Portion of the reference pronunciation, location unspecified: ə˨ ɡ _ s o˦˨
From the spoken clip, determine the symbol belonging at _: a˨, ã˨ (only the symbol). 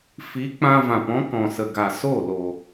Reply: a˨